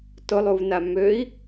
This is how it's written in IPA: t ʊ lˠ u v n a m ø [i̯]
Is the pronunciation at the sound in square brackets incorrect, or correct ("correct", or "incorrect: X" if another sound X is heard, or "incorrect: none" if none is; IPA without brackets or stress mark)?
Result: correct